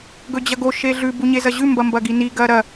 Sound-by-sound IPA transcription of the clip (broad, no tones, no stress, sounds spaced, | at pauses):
ɡ ɵ d͡ʑ ɐ ɡ o ʃ e ɮ ʉ b u ɲ e z ɐ ʑ ʉ m b ɐ m b ɐ ɡ i n i ɡ ɐː ɾ ɐ